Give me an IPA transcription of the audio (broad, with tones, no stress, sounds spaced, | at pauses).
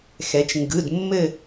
x ɛ˩˧ t͡ʃ ŋ ɡ ɯ˩˧˩ d mː ɘ˦˨